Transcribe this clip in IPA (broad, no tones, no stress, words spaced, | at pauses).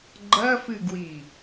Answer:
ɡ͡ǃɐfɨɡwi